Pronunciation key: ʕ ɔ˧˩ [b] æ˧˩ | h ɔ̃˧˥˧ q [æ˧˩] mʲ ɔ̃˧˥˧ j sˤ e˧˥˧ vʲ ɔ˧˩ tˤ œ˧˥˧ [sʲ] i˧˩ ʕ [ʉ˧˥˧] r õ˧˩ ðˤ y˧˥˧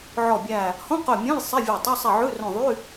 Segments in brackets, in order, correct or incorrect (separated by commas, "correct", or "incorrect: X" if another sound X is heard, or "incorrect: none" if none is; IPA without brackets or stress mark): incorrect: bʲ, incorrect: œ˧˩, incorrect: sˤ, correct